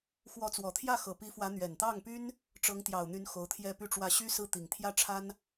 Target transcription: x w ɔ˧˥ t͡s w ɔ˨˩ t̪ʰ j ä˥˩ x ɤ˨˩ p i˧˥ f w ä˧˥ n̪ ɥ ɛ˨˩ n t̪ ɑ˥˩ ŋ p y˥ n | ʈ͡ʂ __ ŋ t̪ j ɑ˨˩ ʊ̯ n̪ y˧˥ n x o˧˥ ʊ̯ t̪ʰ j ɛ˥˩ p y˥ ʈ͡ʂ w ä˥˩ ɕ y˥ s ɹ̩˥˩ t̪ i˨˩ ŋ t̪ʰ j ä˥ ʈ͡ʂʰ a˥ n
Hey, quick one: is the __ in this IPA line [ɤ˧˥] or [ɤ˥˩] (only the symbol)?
ɤ˧˥